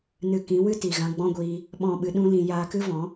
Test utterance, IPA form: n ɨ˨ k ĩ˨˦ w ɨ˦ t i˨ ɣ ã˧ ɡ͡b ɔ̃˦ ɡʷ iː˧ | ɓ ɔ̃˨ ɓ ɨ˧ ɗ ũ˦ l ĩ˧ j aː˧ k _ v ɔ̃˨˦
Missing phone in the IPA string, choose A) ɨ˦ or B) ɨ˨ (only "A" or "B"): A